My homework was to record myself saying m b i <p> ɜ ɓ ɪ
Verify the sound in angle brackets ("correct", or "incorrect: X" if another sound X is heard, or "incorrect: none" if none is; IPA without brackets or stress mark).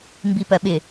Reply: correct